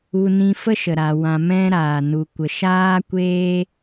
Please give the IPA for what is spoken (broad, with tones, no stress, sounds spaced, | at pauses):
u˧ n ĩ˧ f ə˦ ʃ ə˨ ɾ a˨ w ã˧ m ɛ̃˦ ɾ aː˨ n u˨ kʷ ə˨ ʃ aː˦ kʷ eː˦